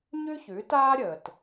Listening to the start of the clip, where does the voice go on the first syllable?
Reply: high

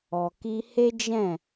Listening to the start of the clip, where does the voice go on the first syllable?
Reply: low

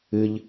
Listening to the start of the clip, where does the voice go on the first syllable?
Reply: high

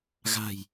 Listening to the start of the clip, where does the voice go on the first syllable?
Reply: low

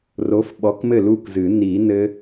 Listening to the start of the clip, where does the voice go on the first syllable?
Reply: rising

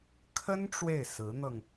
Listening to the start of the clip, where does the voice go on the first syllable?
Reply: high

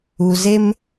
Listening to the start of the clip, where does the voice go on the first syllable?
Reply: low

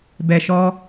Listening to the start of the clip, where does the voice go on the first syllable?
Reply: low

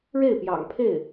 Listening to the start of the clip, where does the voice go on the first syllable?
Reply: falling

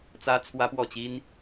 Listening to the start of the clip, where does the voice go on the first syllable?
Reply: high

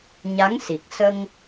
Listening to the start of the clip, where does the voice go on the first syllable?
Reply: rising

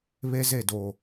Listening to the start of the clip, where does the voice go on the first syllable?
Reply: high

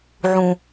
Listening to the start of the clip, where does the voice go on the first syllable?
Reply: low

